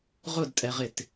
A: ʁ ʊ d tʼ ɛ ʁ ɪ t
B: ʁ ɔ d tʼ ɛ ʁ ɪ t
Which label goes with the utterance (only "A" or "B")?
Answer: A